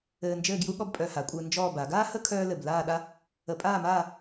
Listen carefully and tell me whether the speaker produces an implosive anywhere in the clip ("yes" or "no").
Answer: yes